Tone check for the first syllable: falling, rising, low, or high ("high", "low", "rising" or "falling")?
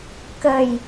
low